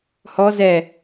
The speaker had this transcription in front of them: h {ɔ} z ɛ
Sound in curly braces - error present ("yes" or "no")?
no